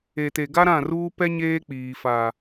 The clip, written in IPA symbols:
e˨te˨ɡa˦ɾã˦˨ ruː˦pɛ˦ ɲeː˦k͡piː˨fa˨

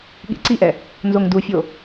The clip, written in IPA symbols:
ɠḭǀiʔɛ | nzoŋdufʲo

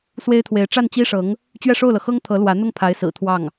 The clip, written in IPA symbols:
swe˥ɪ̯t̪ʰwe˧˥ɪ̯ ʈ͡ʂa˥˩nt͡ɕi˥ʂɤ˧˥ŋ | t͡ɕɥɛ˥˧ʂo˥˩ʊ̯lɤ˩xɤ˥ŋ t̪ʰɤ˧˥lwä˧˥n̪ʊ˥˩ŋ pʰa˧˥ɪ̯sɹ̩˨˩t̪ʰwɑ˥˩ŋ

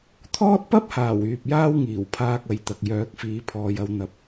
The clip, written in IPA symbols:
t̪ʰɔː˥t̚ pɐ˥p̚haː˨˩w yː˨p̚jaː˥wŋiː˨˩wpʰaː˧k̚ ɐ˨˧jt̪ɐ˨k̚ jœː˨˥k̚fiː˨˧pʰɔː˨jɐ˨˧w n̪ɐ˧p̚

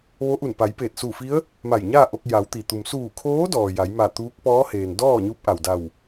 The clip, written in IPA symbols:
ʋo˧˥ʔu˧˩npa˩˧jpeː˧˩t̚ su˧˩fi˧˥ə̯ | ma˧˩jɲaː˥˨ʔo˧k̚ ja˩˧wt̪i˩t̪u˩m suː˧˩kʰoː˧˥dɔː˩ ja˩˧jma˧˩t̪uː˧˥k̚ pɔː˧˥heː˩ndɔː˥˨ ɲu˧˥p̚ʔa˩wda˧˩w

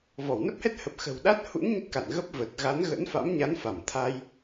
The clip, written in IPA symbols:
vɔ˧˩wnə˦˥p̚hɛ˦˥t̚ hə˨˩p̚xə̤˨˩wɗa˦˥t̚ hṵ˧˥n ɲə˦˥t̚ka̰˧˨n ɣə˦˥p̚ və˨˩t̚ɣa˨˦n ɣə̰˧˥nfa̰˧˥mɲa˨˦n fa˧˩mt̪ʰa˧j

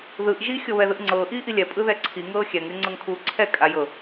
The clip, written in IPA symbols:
ðɯʔ ʒi xʲɤβɛðɯʔŋ͡ǀɤː ʔiːʔilʲɛ pʼɯðɛǀʰi ŋɤːxʲɛŋ ɾʲɤŋ͡ǀɤŋkʰuːǀʰɛ kʼajɤ

